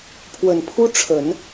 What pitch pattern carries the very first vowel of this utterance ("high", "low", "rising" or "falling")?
low